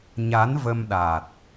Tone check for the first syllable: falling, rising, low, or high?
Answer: rising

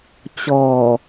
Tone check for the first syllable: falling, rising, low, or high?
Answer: low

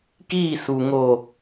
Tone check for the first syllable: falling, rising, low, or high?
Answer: falling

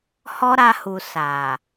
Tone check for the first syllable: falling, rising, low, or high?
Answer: high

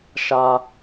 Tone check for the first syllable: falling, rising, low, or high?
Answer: high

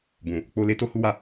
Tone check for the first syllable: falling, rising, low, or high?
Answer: low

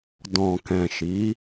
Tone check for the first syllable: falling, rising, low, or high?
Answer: low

